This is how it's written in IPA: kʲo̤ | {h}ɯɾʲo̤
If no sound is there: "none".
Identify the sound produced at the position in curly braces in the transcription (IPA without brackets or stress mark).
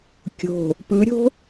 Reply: p